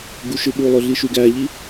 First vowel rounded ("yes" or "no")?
yes